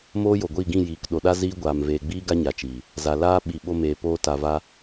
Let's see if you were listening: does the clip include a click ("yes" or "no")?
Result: no